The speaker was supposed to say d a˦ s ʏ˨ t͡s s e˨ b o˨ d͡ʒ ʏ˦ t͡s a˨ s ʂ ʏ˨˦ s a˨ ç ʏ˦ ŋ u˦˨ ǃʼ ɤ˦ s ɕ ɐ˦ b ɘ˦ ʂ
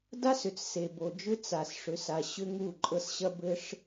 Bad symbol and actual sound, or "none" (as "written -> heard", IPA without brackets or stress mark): ç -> ɕ